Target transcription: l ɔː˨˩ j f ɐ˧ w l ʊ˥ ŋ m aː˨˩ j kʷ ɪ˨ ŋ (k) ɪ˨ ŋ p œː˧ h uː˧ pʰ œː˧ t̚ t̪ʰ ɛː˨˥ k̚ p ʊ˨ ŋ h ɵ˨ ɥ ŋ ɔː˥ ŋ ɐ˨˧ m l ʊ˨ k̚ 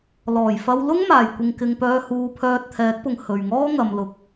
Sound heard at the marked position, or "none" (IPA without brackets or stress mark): k